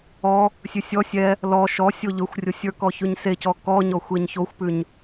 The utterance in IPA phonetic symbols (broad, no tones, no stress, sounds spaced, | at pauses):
ɔ | sʲ ʉ sʲ ɔ sʲ ɛ | l ɔ ʃ ɔ sʲ o ʎ ɵ xʷ rʲ o sʲ ə˞ k ɔ ç ʉ ɲ s e c ɔ k ɔ ɲ ɔ xʷ e ɲ ç o xʷ p ʉ ɲ